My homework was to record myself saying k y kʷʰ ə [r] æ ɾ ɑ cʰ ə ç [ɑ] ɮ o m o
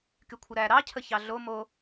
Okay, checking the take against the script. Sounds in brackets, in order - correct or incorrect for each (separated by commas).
incorrect, correct